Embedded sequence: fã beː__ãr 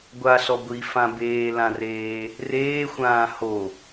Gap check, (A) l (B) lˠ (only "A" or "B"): A